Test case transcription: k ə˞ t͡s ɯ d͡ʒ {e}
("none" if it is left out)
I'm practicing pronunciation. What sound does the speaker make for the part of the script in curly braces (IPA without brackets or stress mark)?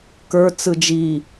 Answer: i